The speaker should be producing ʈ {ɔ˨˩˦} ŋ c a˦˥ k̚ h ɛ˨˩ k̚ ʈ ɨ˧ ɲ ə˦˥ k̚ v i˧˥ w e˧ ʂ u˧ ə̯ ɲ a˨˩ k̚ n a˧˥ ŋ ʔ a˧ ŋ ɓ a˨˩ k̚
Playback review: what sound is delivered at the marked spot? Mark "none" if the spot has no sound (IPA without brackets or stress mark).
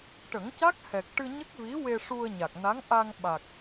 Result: ə˨˩˦